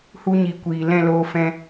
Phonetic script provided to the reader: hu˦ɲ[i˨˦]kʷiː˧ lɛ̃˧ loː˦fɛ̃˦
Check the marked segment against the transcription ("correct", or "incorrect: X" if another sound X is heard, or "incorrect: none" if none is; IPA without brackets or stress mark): incorrect: i˧